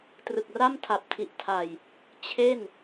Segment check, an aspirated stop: present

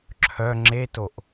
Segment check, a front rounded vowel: present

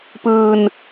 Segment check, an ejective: absent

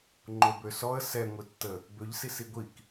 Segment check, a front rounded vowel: present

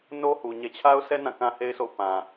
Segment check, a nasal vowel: present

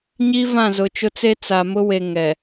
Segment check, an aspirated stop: absent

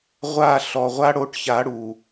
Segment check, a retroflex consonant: present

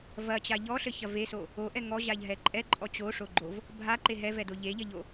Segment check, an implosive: absent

